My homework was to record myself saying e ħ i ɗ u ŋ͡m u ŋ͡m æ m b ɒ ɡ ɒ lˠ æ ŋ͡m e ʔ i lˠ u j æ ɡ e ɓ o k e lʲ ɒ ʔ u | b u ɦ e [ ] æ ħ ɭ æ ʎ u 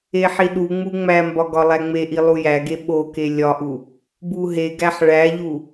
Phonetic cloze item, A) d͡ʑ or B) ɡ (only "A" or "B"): B